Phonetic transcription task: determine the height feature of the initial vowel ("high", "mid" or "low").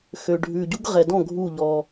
mid